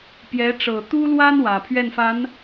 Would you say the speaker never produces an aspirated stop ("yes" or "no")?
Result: no